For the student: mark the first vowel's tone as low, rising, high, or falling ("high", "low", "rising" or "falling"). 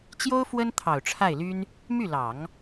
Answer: high